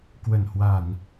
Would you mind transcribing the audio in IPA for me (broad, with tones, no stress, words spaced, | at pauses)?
kwə˧˩nhwa˧˩˨n